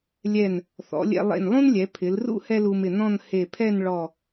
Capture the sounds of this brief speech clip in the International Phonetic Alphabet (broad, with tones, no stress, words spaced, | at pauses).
lʲɛ˧˩n | θɔ̰˩˧lʲɛ̰˧ lˠḛ˧˩nlˠũ˥nlʲɛ˩˧ pʰɪ˩˧lrṵ˥ hɛ˥lu˧mɪ˧˩nɔ̃˥˧n he˧˩pʰɛ˥˧nɭɔ˧˩